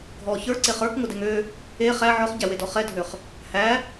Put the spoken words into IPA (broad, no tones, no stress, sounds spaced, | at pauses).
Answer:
ɡʱ ɔ ç ə˞ ǀ e χ ə˞ k ŋ ʊ d ɛ ŋ ø | e χ æ ʕ ɔ χ ɟ æ w e d ɔ χ ɛ dʱ ø χ | h æ